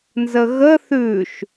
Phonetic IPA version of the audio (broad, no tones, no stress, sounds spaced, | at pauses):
n z ə ɣ ə θ ʉ ʃ